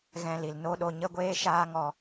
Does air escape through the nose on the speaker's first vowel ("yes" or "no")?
yes